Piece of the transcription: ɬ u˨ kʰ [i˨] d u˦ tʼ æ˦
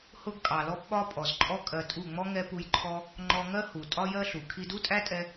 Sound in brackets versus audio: incorrect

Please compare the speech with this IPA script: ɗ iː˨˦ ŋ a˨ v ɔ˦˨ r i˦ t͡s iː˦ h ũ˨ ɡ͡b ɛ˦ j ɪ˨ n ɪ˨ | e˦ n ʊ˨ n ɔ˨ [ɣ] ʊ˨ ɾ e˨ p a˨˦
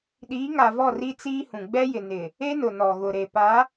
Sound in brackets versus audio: correct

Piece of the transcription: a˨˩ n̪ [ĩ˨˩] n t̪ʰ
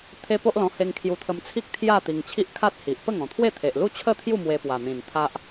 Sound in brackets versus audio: correct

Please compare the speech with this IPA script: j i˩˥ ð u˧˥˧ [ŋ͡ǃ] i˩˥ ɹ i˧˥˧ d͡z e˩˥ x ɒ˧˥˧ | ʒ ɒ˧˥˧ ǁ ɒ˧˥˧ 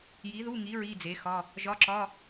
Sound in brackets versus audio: incorrect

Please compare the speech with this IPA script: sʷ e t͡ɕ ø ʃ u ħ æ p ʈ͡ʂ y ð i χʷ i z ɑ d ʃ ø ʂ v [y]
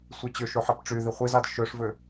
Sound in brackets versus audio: incorrect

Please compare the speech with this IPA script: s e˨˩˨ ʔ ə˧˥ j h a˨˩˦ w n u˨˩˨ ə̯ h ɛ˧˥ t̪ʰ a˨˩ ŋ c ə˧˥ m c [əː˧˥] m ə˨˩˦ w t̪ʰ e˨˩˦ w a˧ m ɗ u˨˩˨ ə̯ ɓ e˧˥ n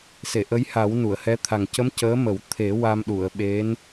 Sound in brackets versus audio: correct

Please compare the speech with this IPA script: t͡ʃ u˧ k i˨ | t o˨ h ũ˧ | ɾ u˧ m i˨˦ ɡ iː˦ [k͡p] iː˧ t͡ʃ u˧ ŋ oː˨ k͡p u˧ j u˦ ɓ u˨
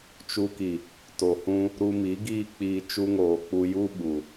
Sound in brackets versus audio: correct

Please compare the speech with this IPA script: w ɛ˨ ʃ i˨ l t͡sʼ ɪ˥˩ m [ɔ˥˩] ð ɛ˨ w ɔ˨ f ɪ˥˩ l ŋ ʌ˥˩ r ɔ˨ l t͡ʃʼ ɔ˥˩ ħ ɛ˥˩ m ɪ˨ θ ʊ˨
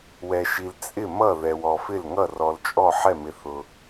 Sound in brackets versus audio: incorrect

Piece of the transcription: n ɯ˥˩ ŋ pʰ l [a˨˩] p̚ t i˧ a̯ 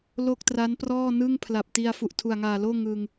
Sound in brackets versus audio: correct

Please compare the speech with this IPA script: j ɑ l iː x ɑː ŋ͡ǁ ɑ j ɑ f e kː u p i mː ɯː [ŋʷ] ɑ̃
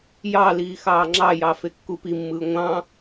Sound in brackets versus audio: correct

